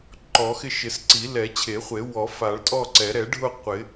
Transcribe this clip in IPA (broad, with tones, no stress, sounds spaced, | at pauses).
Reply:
ǃ ɔ˨˩˦ x ɪ˥˨ ʃ ɪ˨˩˦ s ǀ i˨˩˦ l ɛ˨˩˦ t͡ɕʰ e˨˩˦ χʷ e˨˩˦ w ɔ˨˩˦ f a˨˩˦ ɭ tʼ ɔ˥˨ ǀ ɛ˨˩˦ ɾ ɛ˨˩˦ ɖʱ ʊ˥˨ qʷ ɪ˨˩˦